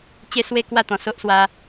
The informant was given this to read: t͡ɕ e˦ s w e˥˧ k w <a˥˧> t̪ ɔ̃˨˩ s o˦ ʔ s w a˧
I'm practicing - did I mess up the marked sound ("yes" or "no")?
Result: no